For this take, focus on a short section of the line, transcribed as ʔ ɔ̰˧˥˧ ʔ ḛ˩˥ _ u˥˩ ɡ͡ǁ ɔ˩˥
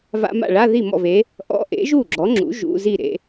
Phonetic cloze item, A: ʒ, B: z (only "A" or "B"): A